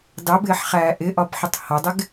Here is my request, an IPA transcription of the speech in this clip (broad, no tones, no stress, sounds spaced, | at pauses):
d ɑ b ɪː ħ χ æː ʔ ɪ ʔ ɒ b ħ ɪ tˤ h ɒ dˤ ɪ ɡ